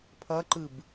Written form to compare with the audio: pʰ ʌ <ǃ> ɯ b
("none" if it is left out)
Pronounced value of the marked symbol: ǃ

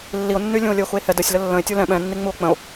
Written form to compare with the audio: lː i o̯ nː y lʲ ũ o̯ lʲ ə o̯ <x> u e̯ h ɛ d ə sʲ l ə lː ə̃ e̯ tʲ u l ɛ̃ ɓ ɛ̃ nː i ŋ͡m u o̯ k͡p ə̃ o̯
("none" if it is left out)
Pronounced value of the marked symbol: x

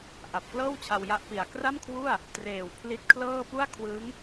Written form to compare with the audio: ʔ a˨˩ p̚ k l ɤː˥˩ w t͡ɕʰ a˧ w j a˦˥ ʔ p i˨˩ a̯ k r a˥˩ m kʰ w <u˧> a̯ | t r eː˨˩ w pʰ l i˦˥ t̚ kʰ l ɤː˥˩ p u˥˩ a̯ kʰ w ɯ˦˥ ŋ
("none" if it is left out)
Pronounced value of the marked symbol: u˥˩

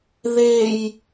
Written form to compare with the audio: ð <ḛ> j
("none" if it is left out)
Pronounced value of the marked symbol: e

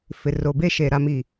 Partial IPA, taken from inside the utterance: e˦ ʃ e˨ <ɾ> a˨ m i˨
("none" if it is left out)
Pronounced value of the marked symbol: ɾ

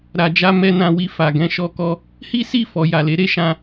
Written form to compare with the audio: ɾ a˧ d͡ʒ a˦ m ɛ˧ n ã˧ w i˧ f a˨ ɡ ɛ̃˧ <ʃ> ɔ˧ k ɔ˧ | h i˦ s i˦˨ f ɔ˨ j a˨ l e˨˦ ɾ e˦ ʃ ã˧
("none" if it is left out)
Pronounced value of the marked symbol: ʃ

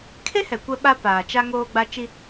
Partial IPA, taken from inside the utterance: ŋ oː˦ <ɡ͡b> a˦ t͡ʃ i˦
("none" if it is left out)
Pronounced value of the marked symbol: ɡ͡b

